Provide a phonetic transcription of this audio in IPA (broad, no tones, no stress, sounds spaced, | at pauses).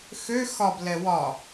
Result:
x ø x ɒ b l ɛ w ɒ